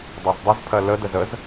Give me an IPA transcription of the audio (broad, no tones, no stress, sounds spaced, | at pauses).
dˤ ɜ z dˤ ə z pʰ ɜ l ə d ə z ə z